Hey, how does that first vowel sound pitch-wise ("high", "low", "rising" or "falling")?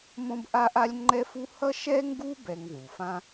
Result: high